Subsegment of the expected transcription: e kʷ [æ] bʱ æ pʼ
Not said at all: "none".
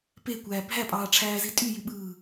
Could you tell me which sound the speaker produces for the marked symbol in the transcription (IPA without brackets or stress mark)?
æː